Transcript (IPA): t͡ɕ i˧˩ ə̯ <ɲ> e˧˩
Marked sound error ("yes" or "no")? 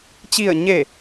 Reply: no